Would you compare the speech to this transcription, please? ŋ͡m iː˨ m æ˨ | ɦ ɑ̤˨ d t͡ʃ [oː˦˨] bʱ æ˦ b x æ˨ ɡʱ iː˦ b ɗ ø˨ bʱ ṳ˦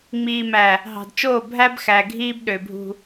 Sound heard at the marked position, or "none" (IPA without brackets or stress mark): oː˦˨